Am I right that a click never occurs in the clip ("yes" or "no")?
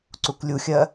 no